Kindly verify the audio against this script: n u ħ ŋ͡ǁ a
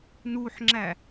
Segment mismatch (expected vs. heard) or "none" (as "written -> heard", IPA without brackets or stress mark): a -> æ